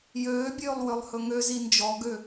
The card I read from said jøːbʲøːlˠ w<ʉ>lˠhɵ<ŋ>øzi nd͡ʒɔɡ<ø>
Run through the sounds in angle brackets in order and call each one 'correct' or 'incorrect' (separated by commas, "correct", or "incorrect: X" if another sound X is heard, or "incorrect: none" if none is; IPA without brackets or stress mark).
incorrect: ø, correct, correct